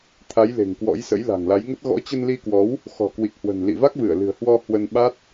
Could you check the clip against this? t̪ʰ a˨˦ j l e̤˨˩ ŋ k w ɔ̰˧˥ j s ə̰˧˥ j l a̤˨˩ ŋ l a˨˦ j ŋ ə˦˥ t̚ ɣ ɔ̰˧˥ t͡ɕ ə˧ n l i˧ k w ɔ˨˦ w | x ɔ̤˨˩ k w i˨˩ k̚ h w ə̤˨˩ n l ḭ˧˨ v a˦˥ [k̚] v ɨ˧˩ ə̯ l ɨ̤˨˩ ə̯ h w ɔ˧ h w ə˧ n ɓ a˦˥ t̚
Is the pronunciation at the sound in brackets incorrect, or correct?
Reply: correct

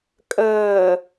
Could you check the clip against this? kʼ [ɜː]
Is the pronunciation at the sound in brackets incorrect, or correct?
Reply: correct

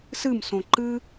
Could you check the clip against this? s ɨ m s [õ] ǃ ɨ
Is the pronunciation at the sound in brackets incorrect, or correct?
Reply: correct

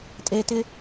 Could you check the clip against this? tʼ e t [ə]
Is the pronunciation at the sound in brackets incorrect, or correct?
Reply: incorrect: ɪ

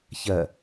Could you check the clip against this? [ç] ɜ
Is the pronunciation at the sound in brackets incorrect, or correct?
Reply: correct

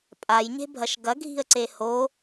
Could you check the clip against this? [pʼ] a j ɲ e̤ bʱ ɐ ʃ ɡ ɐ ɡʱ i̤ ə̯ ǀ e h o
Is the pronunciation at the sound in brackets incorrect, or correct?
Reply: correct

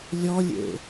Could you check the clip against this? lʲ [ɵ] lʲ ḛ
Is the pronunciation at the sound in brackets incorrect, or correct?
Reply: incorrect: ɔ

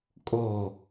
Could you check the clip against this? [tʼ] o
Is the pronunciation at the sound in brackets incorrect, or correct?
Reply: incorrect: kʼ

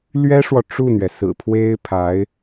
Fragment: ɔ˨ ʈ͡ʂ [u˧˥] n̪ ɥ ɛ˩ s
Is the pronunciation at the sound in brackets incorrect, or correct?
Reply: incorrect: u˥˩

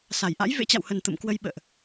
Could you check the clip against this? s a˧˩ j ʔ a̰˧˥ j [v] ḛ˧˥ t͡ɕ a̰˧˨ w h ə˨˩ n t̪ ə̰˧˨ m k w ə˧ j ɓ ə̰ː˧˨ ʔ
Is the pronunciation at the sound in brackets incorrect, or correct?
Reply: correct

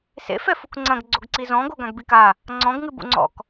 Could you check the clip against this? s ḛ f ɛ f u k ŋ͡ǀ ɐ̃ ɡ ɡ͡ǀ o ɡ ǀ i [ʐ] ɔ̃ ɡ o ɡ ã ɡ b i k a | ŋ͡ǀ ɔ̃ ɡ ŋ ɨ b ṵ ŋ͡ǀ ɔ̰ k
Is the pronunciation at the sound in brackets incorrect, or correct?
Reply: incorrect: z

